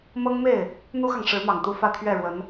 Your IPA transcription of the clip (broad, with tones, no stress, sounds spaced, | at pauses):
m ɤ˥ ŋ m e˥˩ ɪ̯ | n̪ u˥ x ɑ˨ ŋ ʂ ɻ̩˧˥ m ɑ˨˩ ŋ t̪ u˧˥ f ä˥˧ t̪ʰ ɥ ɛ˥˩ ɻ w ə˧˥ n